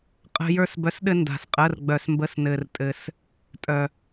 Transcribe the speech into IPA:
qʼə̤˧jə˞˧sbœ˨˥sɗɘ˧ nda̤˧sqʼə˧˥˧rɡ͡bœ˧s mbə˧˥˧snɘ˧rtʼɘ˧s | tʼœ˧

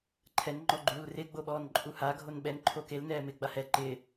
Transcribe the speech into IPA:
ǃʰɛn ŋ͡ǃɔɡ͡ǃuːlrɪ ɡ͡boɓɔːnǃʼuha ɡʱonɓɛn ǃʰokel nɛːmɪːɡ͡bahɛ ǃɪː

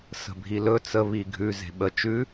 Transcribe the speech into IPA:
sə̤bʱilɵ t͡sə βiɡʱʉ ze̤ɓə t͡ʃʉ

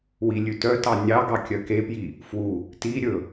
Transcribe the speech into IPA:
wilʲʉtœtɑ nʲɑɡɑ kʲœkepji | fwu | ti ɾʲɵ

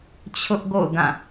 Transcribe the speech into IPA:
t͡ɕʰʊ˦ʔɡo̰˦˨ʊ̯ ɡã˦˨

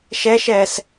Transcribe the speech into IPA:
ʃɛʃɛːs

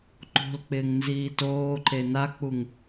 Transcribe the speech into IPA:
ǃo̤lk͡pɪːŋ nziːtoːǃe nak͡puŋ

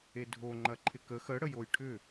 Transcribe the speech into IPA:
edʱoŋ͡ǃɐ ǃʰɪkə xə ɽəjojʈʰʏ

